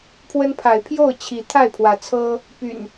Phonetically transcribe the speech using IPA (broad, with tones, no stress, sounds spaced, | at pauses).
pʰ w ə˦ n pʰ a˨˦ ɪ̯ pʰ j o˥˨ ʊ̯ t͡ɕʰ i˨˦ t̪ʰ a˥˨ ɪ̯ pʰ w ä˨˦ t͡sʰ ɤ˦ | p y̰˨˩ n